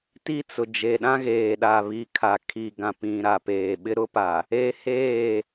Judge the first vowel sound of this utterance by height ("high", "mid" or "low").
high